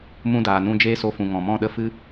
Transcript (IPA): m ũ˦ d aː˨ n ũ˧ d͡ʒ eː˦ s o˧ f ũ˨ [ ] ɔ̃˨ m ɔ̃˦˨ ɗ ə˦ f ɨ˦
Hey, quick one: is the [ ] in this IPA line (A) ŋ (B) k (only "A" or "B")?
A